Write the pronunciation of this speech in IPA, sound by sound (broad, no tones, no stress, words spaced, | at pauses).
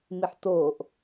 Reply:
miħtoːʔ